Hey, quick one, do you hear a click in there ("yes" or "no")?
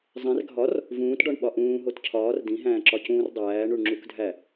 yes